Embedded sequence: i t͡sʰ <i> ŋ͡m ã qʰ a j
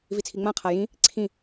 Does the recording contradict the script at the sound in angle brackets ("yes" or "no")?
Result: no